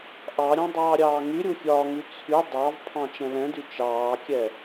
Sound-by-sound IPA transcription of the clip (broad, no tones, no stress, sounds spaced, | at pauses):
ʔ ɑ ɾʲ ɑ̃ dˤ ɑː ɾʲ ɑː ŋ y ɾʲ u fʲ ɒː ŋ y t͡sʰ y dˤ ɑ v pʰ ɑ̃ t͡ʃ ɛ̃ l ɛ̃ d y t͡ʃ ɑː kʲ ɛ